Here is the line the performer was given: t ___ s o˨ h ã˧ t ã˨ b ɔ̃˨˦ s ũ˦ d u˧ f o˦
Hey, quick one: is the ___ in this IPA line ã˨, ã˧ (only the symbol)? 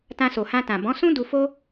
ã˧